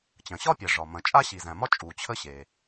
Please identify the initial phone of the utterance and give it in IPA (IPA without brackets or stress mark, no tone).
t͡ɕ